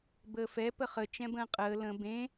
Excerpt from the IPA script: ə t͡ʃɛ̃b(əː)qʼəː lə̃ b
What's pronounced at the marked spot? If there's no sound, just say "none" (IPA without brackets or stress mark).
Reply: ə̃ː